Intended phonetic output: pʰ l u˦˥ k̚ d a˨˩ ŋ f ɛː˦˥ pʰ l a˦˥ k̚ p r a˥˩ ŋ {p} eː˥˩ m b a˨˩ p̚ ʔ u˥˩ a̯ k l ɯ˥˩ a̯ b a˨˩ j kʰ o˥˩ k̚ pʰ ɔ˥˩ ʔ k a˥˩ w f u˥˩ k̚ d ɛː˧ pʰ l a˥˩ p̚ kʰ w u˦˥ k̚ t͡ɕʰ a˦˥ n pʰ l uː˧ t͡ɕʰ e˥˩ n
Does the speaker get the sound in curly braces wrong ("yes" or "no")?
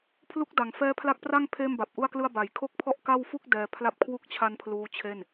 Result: yes